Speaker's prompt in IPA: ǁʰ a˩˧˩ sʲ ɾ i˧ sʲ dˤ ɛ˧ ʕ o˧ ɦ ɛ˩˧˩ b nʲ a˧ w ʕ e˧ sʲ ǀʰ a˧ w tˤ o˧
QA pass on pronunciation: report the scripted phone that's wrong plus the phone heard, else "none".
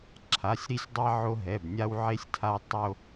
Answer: ǀʰ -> tʰ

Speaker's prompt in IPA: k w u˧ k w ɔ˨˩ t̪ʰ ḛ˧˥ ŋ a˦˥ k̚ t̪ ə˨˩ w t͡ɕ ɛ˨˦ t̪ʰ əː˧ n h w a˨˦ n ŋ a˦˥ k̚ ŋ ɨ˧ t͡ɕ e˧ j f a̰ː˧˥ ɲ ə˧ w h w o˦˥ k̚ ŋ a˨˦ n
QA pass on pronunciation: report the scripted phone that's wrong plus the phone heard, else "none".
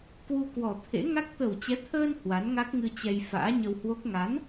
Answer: e˧ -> ɛ˧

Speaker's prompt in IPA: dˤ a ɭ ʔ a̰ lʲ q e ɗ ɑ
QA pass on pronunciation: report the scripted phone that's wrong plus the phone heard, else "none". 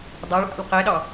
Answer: none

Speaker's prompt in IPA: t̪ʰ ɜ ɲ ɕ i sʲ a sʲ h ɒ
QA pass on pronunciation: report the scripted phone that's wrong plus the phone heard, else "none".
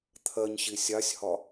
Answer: none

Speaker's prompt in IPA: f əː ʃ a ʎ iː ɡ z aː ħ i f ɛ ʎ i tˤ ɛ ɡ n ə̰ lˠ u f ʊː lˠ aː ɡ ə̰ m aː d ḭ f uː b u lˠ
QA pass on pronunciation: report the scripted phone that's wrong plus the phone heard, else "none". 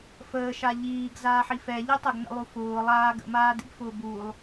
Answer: uː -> ʊː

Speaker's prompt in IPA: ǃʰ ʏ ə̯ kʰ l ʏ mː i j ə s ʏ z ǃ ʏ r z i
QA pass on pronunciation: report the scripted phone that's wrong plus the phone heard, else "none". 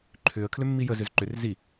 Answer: s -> z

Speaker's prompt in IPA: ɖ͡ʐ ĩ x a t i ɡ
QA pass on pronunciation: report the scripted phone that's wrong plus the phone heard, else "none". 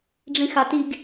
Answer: none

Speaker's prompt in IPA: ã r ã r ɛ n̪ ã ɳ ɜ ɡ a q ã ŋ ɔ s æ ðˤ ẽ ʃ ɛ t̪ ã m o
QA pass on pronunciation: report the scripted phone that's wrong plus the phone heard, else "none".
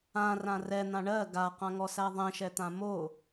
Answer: none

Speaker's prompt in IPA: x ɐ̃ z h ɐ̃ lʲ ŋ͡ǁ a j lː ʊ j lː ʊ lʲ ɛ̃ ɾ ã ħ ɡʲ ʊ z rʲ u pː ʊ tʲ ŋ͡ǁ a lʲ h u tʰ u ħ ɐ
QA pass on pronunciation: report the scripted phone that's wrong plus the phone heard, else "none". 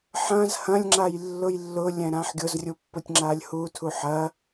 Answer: x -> ħ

